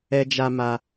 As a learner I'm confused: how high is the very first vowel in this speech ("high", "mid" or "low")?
mid